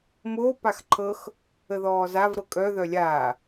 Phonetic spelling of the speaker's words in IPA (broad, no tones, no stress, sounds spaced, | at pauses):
m oː p a x ǃʰ ɤ x | ə ð ɔː z a v ɾ ɤ kʼ œ ð œ lʲ aː